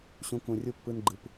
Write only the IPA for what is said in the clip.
ɕ ũ˧ k ũ˨ rʲ u˧ pː ɯ˦ n ɡ͡ǃ ɯ˧ p

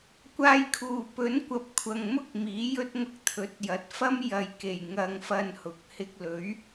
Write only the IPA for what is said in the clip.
kʷ aː˧ j kʰ uː˨˩ p ɵ˨˥ n kʷ ɐ˨ p̚ kʷʰ ɐ˨ ŋ m ʊ˥ k̚ m iː˨˥ j ɵ˥ t̚ ŋ ʊ˧ k̚ t̪ʰ ɵ˨˥ t̚ j ɐ˨˥ t̚ f ɐ˥ m j ɐ˨ j k e˨˩ j ŋ ɐ˧ ŋ f ɐ˧ n h ʊ˨ k̚ h ɪ˧ k̚ l ɵ˨˥ ɥ

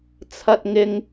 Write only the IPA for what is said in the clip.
t͡sʰ ɐ˧ t̚ ŋ ɪ˧ ŋ

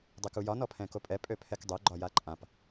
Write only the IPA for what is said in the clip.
dˤ e k u j ɒ n ɔ pʰ ɛ̃ k o pʼ ɛ pʼ ø pʰ ɛ k dˤ ø ɡ͡ǃ ɒ j a ǃʼ ã p

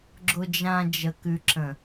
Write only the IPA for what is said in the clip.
ɡ͡ǁ ʊ˨ d͡ʒ ã˨ d͡ʒ ə˨ k ʉ˨ ǁ ə̃˨

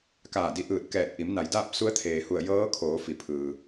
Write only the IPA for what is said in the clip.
k aː˧˩ d i˧ ʔ ɯː˧˩ t̚ k ɛː˧˩ t̚ ʔ i˩˧ m n a˩˧ j d aː˥˨ p̚ s u˧˥ ə̯ t̪ʰ eː˩ h u˧˩ ə̯ j ɤː˧˥ kʰ oː˩˧ f i˩˧ pʰ ɯː˩

